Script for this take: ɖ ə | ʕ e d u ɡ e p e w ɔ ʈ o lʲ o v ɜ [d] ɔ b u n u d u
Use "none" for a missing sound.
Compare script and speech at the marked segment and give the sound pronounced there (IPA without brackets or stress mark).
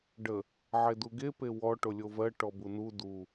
ʈ